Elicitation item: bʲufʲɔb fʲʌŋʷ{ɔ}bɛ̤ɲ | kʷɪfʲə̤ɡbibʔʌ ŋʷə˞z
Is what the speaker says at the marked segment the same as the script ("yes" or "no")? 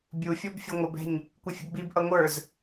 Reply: no